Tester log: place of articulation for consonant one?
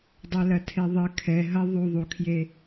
alveolar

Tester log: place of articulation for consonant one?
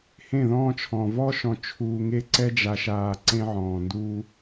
glottal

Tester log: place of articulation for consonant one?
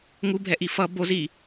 velar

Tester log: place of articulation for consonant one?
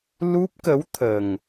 alveolar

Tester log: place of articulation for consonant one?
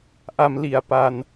glottal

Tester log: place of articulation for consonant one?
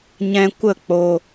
palatal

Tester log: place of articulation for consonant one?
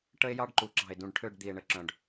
retroflex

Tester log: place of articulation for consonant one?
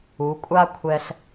velar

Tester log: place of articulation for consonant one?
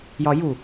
palatal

